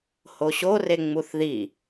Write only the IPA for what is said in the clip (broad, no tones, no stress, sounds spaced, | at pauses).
h o ɕ o r e ŋ͡m u θ ð i